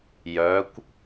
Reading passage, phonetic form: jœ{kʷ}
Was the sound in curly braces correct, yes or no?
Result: yes